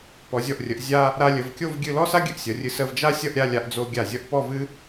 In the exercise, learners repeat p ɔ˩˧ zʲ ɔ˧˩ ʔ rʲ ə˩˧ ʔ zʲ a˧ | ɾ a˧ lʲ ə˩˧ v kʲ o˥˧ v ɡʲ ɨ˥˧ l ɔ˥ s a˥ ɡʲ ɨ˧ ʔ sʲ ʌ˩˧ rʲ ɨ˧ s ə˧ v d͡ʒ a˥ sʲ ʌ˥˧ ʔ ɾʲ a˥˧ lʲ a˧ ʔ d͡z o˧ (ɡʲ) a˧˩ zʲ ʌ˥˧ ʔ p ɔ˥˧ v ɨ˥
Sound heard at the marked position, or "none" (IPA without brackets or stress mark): ɡʲ